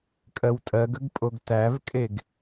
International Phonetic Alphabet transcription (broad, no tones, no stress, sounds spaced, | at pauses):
kʼ ɜ w tʼ ɜ ɡ ə ɡ pʼ o ɡ t æ v kʼ e ɡ